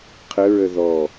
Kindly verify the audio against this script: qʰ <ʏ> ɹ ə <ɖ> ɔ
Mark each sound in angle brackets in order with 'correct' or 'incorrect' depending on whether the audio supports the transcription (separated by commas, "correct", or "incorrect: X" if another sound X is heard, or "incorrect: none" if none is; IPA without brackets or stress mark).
incorrect: ə, incorrect: ð